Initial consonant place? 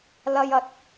alveolar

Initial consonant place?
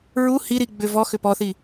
alveolar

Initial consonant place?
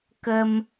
velar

